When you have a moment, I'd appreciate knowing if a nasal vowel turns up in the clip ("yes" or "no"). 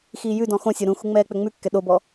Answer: yes